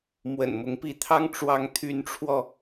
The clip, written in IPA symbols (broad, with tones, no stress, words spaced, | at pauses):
mwə̰˨˩nmʊ˧˥ŋpi˧˥t̪ʰɑ˥ŋ ʈ͡ʂwɑ˧˥ŋt̪ʰy˧˥nʈ͡ʂʰwɔ˧